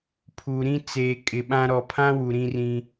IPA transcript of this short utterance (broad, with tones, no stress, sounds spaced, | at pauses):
pʰ u˨ ɾ ĩ˦ t͡s eː˨ kʼ ɪ˨ ɓ ã˦ ɾ ɔ˨ pʰ ã˦ w u˨ ɾ ĩ˦ r ĩ˦